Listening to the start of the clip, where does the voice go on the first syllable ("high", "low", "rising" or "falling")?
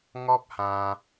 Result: high